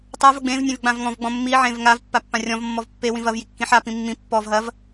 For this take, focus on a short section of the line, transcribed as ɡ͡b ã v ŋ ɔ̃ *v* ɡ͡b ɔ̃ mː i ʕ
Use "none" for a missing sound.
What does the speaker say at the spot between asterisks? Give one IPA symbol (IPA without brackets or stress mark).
v